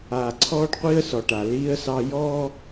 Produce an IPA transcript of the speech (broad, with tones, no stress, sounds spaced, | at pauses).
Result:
aː˨ ǀʰ ɔː˦ ɖ qʷ iː˦ ə̯ s ɔ˨ ʈ a˨ l iː˦ ə̯ s ɑ˦ j ɔː˦